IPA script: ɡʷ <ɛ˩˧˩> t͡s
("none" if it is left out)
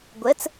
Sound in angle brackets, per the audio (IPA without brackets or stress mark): ɛ˩˧˩